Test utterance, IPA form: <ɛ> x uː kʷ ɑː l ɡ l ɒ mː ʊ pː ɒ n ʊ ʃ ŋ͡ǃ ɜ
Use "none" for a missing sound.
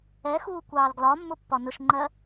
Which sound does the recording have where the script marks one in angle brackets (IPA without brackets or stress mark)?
ɛ